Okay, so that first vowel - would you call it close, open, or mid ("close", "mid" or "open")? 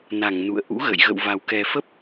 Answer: open